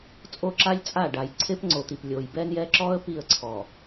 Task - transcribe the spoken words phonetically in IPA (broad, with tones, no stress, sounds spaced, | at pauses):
t͡sʼ o˦ ǁ a˦ lʲ t͡sʼ a˦˨ ɖ a˨ j ǀʰ e˦ p ŋ͡ǀ o˨ t̪ i˨ p lʲ o˨ j b ɛ˦ n j ɛ˦ ǁ ɔ˦ ə̯ p i˦˨ ə̯ ǀʰ ɔ˨